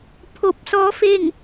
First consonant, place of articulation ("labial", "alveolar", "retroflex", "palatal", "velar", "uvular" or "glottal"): labial